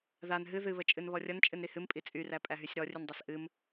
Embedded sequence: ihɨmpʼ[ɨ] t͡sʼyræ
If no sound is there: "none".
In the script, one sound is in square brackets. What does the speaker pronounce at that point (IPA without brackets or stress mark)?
i